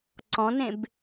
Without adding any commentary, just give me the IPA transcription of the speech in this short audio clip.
ǀ ɔ̃ n ẽ b

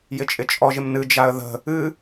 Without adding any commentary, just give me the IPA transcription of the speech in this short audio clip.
j ɪ t͡ʃʼ ɪ t͡ʃʼ ɔ ʒ ɪ m n ɨ d͡ʒ a ə̯ ð ə̤ | ɨ

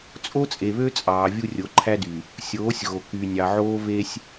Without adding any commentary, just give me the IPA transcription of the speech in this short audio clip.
t͡sʼ o˦ t͡sʼ e˨ β ø˦ t͡sʼ ɑː˨ vʲ u˦ rʲ o˨˦ ǃʰ æ˦ d y˨ | sʲ oː˨˦ sʲ ɣ o˨ k y˨ nʲ ɑ˨ ʕ oː˦ v e˦ sʲ

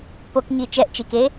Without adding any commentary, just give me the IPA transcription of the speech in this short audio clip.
p o k ɲ i t͡ʃ ɛ ʔ t͡ʃ i k e

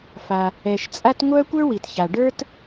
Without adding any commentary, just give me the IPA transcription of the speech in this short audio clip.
f a˩ | ɛ˩ ʃ t͡sʼ a˥ t ŋʷ œ˥ kʷ ə˞˥ w i˩ t ç a˩ ɖ ə˞˥ t

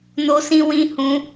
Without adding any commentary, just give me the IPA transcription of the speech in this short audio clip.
n o˦ s ĩ˦ w ĩ˦ h ũ˦

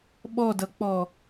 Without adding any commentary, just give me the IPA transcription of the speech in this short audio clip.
ɓ ɔ d ʌ k͡p ɔ

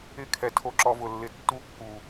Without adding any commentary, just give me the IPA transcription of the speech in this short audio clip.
ɪ˧ kʰ ɛ˨ tʰ o˧ ǁ ɔ˧ v ʊ˨ lː ɪ˧ tː u˧ kː u˨

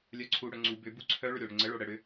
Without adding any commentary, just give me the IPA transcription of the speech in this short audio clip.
lʲ œ ǀʰ u ɽ œ ŋ͡ǀ u b ʏ b u ǀʰ œ ɭ ʏ ɾʲ o ɽ ʏ ŋ͡ǀ ə ɭ o ɽ ə ɽ ʏ

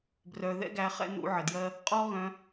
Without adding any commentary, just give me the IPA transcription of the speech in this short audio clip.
b r œ˨ ð ɛ̰˦ ɡ æ˨˦ χ ɛ̰˦ n ṵ˧ ʕ ə˨ d j ɜ˦ | qʼ ɔ˦ ɣ œ̃˧

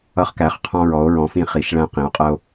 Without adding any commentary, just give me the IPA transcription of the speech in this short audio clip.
ʌ˧ χ k æ˩˧ χ qʰ ɔ̃˧ ɹ ɔ˩˧ o̯ ɹ ɔ̃˩˧ f ĩ˧ χ i˩˧ ʃ ɭ æ̃˧ q ĩ˩˧ o̯ qʼ ɜ˧ o̯

